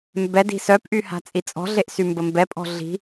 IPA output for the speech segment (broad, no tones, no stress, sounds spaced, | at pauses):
m b ɛ d i̤ s œ p ʔ y h a̤ t͡sʼ i t͡sʼ ɔ̤ ɮ e ʔ s y m b ə m b ɛ pʼ ɔ̤ ɮ i̤